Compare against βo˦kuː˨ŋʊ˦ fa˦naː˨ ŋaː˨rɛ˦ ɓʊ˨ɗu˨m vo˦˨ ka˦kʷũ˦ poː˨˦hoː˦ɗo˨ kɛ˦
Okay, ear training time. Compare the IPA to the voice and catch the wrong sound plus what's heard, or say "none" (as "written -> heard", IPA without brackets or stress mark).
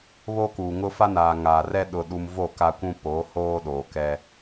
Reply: ɓ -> ɗ